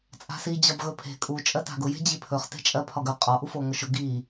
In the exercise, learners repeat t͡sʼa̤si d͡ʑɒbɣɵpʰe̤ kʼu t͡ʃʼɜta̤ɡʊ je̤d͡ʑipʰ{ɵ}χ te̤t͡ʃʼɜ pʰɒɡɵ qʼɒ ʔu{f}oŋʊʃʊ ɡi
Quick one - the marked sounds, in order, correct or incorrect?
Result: correct, correct

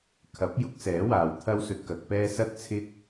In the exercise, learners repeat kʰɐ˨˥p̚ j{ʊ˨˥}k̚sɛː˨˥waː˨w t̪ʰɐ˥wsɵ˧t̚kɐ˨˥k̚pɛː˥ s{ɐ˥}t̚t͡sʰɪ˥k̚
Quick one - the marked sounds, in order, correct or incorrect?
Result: incorrect: ʊ˥, correct

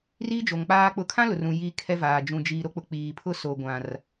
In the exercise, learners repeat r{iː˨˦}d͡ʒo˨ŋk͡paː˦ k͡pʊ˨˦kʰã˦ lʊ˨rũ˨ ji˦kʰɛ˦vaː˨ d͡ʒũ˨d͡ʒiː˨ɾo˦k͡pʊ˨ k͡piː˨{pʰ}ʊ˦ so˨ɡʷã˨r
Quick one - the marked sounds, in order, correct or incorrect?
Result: incorrect: iː˦, correct

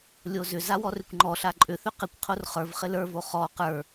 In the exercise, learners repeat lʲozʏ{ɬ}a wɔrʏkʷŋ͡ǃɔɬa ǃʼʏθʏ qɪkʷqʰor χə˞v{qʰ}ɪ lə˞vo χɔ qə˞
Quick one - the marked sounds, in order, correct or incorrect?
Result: incorrect: z, incorrect: χ

